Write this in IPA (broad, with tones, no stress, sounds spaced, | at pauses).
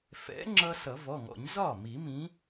f ɛ̰˨˥ ŋ͡ǁ ʌ˧ s ʌ˨˩˦ v ɔ˩˧˩ ŋ ɔ̰˨˩˦ ɲ z ɒ˥˩ m i˨˩˦ m ĩ˨˥